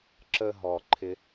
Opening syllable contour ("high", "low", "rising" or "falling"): high